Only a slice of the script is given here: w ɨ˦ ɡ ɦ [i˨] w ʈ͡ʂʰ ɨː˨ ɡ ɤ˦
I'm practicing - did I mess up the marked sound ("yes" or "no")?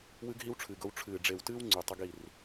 yes